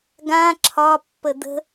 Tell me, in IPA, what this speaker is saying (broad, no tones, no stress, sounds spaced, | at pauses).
ɡ ã ǁʰ ɒ pː ə d̪ ə̤